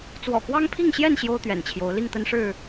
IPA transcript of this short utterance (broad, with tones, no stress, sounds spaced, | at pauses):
t͡s w ɔ̰˨˩ k w ɑ˦ ŋ pʰ i˥˨ ŋ ɕ j ɛ˥˨ n ɕ j o˦ ʊ̯ t̪ ɥ ɛ̰˨˩ n t͡ɕʰ j o˨˦ ʊ̯ l i˥˨ ŋ t̪ ə˦ n ʂ ɻ̩˥˨